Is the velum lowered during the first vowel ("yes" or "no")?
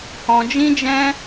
yes